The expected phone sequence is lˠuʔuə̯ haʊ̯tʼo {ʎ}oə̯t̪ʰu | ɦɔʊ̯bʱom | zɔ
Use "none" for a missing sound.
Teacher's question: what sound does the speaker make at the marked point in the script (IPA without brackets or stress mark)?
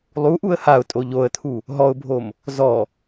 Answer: ʎ